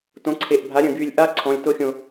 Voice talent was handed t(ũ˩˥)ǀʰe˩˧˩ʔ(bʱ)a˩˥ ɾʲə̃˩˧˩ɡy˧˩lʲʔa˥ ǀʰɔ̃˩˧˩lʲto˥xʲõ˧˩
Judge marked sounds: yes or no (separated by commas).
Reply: no, yes